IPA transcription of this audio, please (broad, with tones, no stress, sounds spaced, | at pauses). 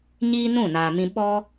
ɲ iː˦ n ũ˦˨ n aː˨ m ĩ˧ ɓ ɔ˦